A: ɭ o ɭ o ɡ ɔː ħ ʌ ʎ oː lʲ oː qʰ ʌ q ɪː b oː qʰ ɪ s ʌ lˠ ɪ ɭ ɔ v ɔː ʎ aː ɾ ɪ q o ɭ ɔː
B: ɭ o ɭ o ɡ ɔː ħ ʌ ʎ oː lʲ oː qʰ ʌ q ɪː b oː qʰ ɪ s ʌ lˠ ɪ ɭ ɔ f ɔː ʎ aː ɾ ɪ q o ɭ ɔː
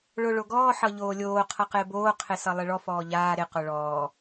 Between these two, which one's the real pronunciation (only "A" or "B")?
B